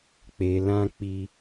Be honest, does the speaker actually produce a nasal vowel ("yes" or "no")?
yes